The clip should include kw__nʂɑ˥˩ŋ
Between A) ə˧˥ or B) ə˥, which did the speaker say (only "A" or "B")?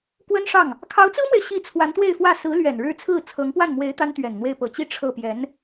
B